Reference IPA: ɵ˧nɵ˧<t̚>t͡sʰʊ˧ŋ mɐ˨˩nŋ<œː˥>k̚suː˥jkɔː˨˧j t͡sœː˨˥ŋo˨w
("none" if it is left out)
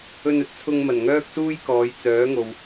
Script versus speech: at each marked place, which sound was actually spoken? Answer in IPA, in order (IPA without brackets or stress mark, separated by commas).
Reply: t̚, œː˥